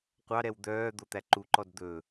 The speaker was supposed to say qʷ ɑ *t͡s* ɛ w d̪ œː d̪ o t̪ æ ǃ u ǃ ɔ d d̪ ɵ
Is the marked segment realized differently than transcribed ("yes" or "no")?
yes